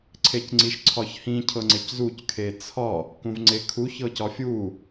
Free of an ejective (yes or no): yes